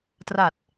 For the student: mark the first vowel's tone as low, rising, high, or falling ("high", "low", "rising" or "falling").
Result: low